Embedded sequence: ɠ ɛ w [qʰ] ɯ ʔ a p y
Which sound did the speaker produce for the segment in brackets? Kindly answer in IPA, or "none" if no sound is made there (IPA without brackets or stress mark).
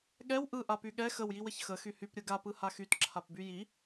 ʔ